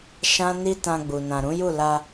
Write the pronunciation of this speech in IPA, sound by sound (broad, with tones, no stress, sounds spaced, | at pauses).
ʃ ã˦ n i˦ t ã˧ ɡ͡b u˨ n ã˨ ɾ ũ˨˦ j u˦˨ l a˧